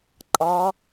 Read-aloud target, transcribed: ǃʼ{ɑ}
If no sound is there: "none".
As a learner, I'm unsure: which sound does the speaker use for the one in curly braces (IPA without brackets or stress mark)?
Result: ɑ